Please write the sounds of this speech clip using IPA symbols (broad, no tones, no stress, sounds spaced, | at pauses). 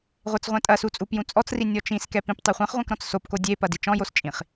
ʁʷ e t͡s ʁʷ ɛ̃ tʼ ɐ s u t͡sʼ u p j ũ t͡sʼ ɔ t͡s r i nʲ ɔ t͡ʃ ĩ s k ɛ p ĩ p tˤ e χʷ ɛ̃ χ ʁʷ ɛ̃ k ɾ ɔ̃ t͡s s o p k o dʲ e p ɐ d i t͡ʃ ɔ̃ j o s t͡ʃʼ ĩ χ